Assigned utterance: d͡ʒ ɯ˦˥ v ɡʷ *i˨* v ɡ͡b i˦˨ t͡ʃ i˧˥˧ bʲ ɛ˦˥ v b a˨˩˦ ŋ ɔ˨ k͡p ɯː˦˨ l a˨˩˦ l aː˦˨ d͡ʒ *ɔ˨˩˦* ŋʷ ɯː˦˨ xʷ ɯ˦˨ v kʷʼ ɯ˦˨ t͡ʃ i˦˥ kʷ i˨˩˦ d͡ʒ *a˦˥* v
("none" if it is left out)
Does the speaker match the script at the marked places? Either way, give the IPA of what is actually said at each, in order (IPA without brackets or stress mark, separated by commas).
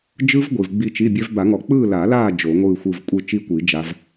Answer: i˨, o˨˩˦, a˦˥